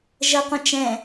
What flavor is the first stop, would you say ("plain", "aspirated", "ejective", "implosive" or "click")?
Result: plain